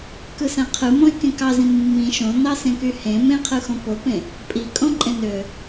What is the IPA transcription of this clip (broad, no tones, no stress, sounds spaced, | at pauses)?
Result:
k ɯ s æ̃ qʰ ɯ m õ e̯ k ẽ k ɑ z ĩ mː ĩ ʃ õ n ɑ s ẽ k y h ẽ m ẽ qʰ ɯ x õ p o p ẽ | pʼ i kʼ õ ǃʼ ẽ n ø